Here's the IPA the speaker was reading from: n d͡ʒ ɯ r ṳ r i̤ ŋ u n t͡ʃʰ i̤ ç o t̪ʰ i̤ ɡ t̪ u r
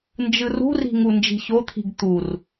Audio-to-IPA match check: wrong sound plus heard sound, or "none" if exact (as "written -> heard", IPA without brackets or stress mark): t͡ʃʰ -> d͡ʒ